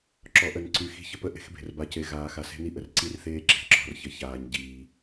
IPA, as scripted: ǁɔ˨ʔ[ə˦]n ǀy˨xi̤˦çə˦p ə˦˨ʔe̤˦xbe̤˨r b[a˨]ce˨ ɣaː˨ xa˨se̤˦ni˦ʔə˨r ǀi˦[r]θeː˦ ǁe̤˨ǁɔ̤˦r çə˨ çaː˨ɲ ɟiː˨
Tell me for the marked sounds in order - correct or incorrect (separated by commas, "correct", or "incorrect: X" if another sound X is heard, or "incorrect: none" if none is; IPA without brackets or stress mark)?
incorrect: ə˨, correct, correct